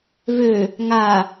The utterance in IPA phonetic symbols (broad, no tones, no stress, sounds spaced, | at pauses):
v ø | ŋ a